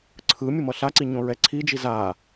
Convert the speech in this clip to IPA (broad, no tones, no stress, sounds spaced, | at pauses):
ǀʰ ɯ mʲ ɯ m ʌ ɬ a ǀ i ɲ õ ɹ ɛ ǀʰ i d͡ʒ i z a